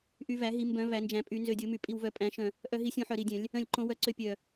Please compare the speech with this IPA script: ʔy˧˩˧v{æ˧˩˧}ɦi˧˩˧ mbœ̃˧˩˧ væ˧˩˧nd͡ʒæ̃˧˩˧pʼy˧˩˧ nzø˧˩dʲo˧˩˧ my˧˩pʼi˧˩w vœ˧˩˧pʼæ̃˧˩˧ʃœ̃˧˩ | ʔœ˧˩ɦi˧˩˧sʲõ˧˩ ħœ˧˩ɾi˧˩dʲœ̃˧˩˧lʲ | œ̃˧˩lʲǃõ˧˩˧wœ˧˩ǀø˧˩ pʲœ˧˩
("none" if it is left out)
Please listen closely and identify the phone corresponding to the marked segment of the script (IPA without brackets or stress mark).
æ˧˩˧